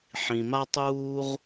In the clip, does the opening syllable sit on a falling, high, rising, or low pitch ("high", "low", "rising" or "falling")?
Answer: low